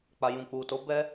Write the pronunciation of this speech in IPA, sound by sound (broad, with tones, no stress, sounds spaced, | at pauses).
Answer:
k͡p a˨ j ũ˨ k͡p u˨ t o˨˦ b ɛ˧